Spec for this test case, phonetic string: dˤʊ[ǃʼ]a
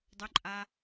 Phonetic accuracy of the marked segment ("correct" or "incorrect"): correct